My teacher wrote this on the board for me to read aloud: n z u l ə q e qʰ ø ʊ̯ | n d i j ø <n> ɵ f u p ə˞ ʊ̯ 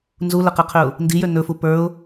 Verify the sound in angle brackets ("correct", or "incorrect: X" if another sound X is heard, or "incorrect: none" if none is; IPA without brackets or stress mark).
correct